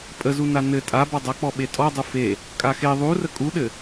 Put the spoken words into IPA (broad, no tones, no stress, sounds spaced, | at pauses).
pʼ ə z u n a n ɘ tʼ a b ɔ dˤ a k͡p ɔ ɓ e tʼ ɔ dˤ u f e | kʼ a x e ðˤ u r ə kʼ u ɗ ɘ